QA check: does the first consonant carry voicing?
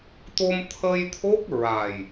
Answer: no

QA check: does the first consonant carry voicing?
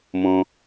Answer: yes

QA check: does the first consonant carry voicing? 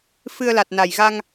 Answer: no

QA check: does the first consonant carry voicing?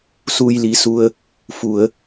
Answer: no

